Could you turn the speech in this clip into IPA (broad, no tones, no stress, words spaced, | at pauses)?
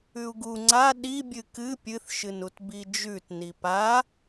ʉu̯ɡu ŋ͡ǀa ɗi bʲɨkɨ pʲɨθ ʃɨnutbid͡ʒʉt nipa